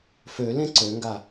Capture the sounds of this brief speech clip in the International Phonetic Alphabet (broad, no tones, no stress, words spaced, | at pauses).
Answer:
fø lẽǀøŋɡa